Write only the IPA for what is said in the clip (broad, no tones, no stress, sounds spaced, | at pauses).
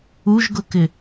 u ʒ ɡ ʊ k ɪ